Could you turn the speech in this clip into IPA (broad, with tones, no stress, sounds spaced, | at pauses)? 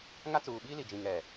ŋ a˦ t͡s uː˨ ɓ iː˦ l i˨ d͡ʒ ĩ˨ ŋ ɛ˨